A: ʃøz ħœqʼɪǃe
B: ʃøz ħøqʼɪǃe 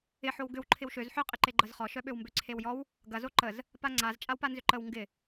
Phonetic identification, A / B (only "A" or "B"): B